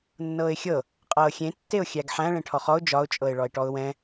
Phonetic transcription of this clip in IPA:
nː ɤː ɪ̯ xʲ ɤ | qʼ ɤː xʲ ẽ tː e ʊ̯ xʲ æ ɡ ħ æ̃ ɭ ẽ ʈʰ ɔ χ ɔ ʊ̯ d͡ʒ ɒ ʊ̯ t͡ʃʼ ɤ ɪ̯ ɭ ɔ ɪ̯ ʈ ɔ ʊ̯ w ɛ̃

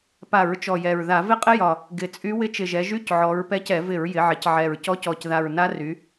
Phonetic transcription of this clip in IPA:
p a˧˩˧ ɹ t͡ʃ ɔ˨˩ j ɛ˨˩ ɹ ð a˧˩˧ v ɪ˥ qʼ ɪ˥ j ɒ˨˩ | ɡ ɪ˨˩ t͡sʼ y˧˥ w ɪ˧˥ t͡ʃ ɪ˨˩ ʒ ɛ˩˧ ʒ y˧˥˧ c ʕ ɔ˩˧ ɹ p ɛ˧˥ c ɛ˧˩˧ v ɪ˧˩˧ ɹ j ɪ˩˧ ʕ ɪ˩˧ c ʕ ɛ˨˩ ɹ c ɔ˧˥ c ɔ˨˩ c ð a˨˩ ɹ n a˧˥ r y˩˧

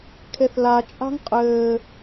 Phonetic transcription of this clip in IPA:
kʰ e θ l a t͡ʃʼ a̤ ŋ qʼ ɘː

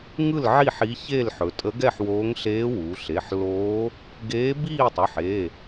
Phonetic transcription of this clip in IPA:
ŋ ɯ˥˨ l ʕ i˥˨ ħ i˧˥ ç e˥˨ l ħ ɵ˩˧ tʼ ə˧˥ ɡ ɛ˥˨ ħ w oː˧˥ ŋ ɬ eː˧˥ w u˩˧ ɬ e˩˧˩ ħ l oː˧˥ | ɡ eː˧˥ b iː˥˨ tˤ ɵ˩˧˩ ħ e˩˧˩

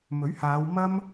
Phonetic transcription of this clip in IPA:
m ɵ˨˥ ɥ h aː˨˧ w m ɐ˥ m

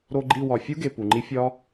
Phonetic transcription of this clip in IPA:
ɾ o˧ ɡ͡ǃ i˦˨ w ɒ˨ fʲ u˦ ɡ e˨ p u˨ ŋ͡ǃ i˦ fʲ ɒ˦

